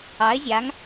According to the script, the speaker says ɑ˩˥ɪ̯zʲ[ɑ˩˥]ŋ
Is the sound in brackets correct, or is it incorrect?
incorrect: a˩˥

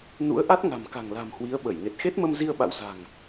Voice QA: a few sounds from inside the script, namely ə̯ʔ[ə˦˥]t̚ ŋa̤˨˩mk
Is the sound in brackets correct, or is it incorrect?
incorrect: a˦˥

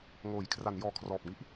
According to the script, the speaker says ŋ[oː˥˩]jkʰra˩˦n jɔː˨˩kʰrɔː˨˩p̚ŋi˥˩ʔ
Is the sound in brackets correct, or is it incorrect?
incorrect: oː˩˦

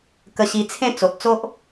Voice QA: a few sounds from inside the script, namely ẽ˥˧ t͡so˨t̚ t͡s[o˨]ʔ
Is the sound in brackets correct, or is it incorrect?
incorrect: o˦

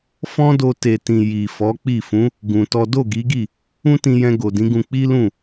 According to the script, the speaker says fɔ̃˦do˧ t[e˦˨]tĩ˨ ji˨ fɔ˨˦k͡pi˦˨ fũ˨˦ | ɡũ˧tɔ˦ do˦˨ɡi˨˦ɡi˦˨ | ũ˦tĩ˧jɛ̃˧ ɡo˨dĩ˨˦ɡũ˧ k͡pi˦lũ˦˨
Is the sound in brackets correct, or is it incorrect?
incorrect: e˨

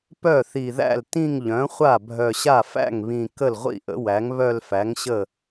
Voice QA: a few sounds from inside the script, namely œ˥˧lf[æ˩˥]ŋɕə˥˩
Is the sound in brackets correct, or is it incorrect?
correct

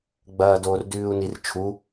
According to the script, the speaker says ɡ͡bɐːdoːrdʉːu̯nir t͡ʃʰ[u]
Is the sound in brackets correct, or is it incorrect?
correct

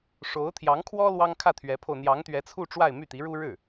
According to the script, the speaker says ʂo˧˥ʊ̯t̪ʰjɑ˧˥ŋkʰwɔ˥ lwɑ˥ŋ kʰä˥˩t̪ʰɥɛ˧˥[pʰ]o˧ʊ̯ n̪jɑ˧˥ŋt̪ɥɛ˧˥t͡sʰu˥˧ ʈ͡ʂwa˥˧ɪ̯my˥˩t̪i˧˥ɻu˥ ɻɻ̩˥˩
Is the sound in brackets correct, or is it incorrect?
correct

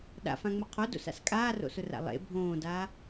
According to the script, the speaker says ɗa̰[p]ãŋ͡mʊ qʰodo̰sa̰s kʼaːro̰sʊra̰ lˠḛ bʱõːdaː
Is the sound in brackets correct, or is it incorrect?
incorrect: f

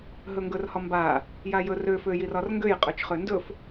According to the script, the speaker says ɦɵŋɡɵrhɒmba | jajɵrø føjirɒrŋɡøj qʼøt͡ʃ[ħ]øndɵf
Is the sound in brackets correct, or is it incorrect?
incorrect: χ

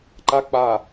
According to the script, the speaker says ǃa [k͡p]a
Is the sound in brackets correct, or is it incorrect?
correct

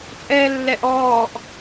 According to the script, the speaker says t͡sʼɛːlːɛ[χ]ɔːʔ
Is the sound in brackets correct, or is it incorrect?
incorrect: ʔ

